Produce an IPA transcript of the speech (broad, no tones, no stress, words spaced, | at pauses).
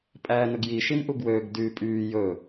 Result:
pʼæːnɵɡji ʃimʔuɡwøːɡ dyːpʼyː jɵ